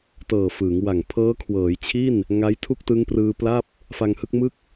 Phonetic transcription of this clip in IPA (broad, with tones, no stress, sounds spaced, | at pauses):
t ɤː˨˩ f ɯː˩˦ ŋ w a˨˩ ŋ pʰ ɤː˦˥ kʰ w ɤː˩˦ j t͡ɕʰ i˥˩ n | ŋ a˦˥ j tʰ u˥˩ k̚ t ɯ˦˥ ŋ p r ɯː˧ p l a˥˩ p̚ | f a˧ ŋ h ɯ˥˩ k̚ m ɯ˥˩ k̚